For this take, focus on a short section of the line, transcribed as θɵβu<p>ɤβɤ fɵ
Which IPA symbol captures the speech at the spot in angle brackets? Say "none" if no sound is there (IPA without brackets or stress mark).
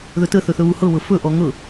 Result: h